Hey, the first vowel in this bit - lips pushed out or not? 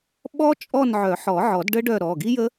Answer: yes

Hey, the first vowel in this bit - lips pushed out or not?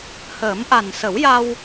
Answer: no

